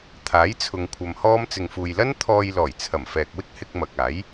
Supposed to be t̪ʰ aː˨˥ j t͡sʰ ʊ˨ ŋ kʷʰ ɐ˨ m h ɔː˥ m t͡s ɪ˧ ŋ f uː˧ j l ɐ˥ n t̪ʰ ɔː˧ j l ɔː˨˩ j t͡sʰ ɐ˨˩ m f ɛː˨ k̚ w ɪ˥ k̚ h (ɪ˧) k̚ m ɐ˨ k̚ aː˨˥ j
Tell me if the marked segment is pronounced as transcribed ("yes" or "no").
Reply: yes